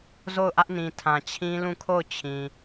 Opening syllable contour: falling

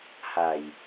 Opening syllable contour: low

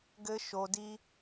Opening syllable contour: high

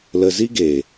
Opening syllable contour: low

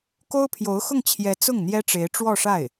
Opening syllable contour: high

